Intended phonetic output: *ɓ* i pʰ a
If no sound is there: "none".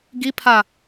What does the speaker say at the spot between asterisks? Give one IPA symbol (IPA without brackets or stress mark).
ɡ